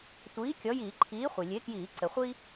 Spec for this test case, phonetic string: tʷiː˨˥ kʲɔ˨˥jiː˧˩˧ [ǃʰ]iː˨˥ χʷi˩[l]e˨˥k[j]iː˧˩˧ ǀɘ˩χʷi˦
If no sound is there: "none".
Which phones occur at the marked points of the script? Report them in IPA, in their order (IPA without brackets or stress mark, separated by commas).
ǃʰ, lʲ, j